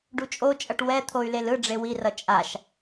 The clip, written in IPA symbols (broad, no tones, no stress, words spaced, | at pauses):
ɖut͡ʃʼot͡ʃʼʌʈ wɛ t̪ʰoy̯lelɯ ɖ͡ʐewirʌ t͡ʃʼaʃ